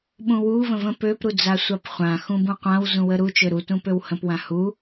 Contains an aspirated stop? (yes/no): no